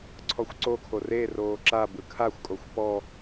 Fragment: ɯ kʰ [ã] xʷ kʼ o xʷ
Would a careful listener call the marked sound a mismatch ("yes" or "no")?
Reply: yes